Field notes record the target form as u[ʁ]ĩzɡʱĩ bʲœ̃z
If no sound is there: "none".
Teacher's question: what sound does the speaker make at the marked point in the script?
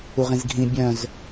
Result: ʁ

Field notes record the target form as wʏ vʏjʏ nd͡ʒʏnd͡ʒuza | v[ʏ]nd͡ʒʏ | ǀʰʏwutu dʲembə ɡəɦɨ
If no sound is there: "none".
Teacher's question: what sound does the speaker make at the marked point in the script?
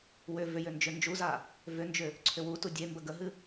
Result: ʏ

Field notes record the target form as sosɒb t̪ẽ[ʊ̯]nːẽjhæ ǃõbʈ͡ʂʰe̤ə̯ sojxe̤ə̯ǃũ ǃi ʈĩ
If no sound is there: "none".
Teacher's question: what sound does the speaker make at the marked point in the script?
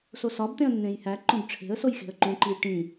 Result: ə̯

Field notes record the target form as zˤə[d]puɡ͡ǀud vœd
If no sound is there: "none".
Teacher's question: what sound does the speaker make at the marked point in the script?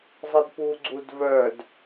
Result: d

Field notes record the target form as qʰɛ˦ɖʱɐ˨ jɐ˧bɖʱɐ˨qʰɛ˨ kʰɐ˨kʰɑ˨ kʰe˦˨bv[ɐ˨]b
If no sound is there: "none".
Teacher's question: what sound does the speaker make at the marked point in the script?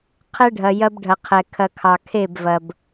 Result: ɐ˨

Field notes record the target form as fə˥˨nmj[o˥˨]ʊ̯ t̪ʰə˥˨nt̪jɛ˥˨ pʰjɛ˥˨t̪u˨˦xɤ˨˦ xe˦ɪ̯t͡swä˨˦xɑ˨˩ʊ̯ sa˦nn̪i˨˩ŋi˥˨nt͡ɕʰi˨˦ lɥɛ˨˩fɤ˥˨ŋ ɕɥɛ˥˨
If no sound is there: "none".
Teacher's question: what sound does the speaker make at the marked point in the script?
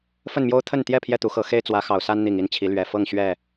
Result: o˦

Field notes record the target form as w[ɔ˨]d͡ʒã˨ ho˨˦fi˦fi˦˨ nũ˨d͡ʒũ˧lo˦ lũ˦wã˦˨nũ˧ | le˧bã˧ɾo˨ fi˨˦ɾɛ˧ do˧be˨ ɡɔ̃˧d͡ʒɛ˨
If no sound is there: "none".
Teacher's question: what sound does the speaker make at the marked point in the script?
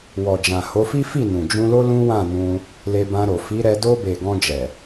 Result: ɔ˨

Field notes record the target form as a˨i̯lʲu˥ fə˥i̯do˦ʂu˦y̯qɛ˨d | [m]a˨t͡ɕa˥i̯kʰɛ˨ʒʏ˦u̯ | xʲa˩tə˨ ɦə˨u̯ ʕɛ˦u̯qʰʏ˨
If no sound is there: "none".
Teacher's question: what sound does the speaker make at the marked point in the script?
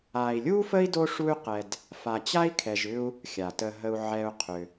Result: f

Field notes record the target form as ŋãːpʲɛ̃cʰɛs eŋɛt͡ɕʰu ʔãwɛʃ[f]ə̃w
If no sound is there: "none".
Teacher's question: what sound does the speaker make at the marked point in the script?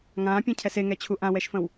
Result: f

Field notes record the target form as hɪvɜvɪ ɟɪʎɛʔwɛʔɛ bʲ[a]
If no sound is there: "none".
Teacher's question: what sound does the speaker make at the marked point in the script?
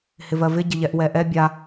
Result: a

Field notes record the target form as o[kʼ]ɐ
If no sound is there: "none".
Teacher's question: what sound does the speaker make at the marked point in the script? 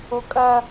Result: kʼ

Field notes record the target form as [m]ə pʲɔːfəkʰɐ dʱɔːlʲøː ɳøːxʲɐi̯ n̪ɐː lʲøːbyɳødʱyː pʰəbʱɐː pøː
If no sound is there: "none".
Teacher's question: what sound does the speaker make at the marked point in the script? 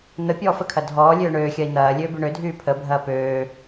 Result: n̪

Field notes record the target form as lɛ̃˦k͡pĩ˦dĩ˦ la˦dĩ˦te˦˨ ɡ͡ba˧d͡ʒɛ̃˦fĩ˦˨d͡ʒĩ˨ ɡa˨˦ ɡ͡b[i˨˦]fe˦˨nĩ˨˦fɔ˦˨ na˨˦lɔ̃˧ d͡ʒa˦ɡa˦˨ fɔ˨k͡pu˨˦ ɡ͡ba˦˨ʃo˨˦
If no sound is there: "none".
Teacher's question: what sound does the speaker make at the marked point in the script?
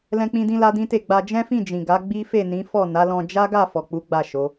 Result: i˦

